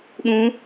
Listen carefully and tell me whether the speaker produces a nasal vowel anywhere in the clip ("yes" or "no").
yes